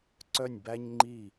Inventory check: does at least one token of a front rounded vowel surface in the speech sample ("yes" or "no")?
yes